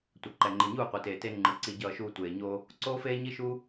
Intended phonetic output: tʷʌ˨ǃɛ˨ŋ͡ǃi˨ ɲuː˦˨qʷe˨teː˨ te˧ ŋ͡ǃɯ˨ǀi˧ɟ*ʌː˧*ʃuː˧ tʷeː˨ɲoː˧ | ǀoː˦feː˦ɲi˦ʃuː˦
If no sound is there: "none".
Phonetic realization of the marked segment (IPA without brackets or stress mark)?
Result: ʌː˧